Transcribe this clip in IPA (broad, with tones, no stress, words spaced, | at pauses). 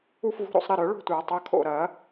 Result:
u˥˧fvṳ˧˥˧ɾo̰˥˧sˤ ɾɪ˩˧˩ɾœ˨˩˦ɭo̤˥˩tʷa˨˩˦ tˤɐ˩˧˩kʰo̰˥˩ɾɐ˨˩˦